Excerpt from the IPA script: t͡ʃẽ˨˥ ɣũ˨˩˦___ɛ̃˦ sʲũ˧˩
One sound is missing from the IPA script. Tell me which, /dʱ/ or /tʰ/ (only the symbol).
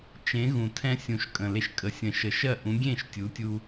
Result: tʰ